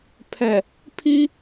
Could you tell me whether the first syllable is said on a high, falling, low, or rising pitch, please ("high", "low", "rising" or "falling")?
low